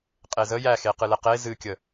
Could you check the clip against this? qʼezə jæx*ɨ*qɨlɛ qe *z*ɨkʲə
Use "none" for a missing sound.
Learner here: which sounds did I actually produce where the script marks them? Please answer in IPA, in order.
e, z

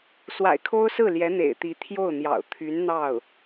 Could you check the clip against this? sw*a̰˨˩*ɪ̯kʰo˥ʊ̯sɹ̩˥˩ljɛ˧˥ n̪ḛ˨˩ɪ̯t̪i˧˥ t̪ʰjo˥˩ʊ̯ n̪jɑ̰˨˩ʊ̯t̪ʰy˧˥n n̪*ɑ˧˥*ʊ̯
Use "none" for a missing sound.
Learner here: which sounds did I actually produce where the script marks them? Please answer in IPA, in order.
a̰˨˩, ɑ˥˩

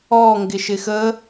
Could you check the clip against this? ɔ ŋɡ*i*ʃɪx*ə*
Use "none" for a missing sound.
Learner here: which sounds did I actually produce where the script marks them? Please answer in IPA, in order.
ɪ, ə

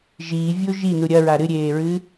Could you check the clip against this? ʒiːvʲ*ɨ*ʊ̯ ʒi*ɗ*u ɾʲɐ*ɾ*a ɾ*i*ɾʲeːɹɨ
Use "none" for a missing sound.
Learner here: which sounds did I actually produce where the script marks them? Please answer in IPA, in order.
ɨ, n, ɹ, ɨ

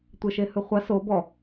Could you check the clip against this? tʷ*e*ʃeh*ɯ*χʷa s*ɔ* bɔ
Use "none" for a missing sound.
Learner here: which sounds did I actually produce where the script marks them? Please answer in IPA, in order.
e, ɯ, o

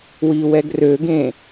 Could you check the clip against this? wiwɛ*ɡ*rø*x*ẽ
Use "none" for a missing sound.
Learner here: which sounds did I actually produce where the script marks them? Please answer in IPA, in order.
ɡ, ɡ

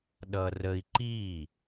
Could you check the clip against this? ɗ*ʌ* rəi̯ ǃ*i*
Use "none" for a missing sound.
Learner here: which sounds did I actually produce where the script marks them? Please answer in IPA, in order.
ʌ, i

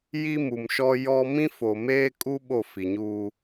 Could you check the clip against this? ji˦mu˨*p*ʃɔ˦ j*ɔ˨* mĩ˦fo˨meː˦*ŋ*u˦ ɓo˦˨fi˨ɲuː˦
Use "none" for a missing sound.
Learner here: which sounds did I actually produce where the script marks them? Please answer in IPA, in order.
m, ɔ˦, kʼ

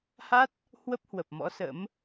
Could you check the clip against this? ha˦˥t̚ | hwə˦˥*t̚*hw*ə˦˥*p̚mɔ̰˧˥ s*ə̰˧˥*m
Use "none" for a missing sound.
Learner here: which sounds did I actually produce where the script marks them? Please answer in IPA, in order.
p̚, ə˨˩, ə̰˧˥

